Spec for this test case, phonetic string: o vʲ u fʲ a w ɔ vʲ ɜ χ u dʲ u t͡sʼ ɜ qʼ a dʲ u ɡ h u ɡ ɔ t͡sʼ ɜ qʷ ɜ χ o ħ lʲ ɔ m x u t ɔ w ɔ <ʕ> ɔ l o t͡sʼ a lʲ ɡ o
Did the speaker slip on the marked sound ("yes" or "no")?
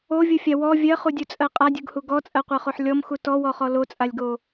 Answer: yes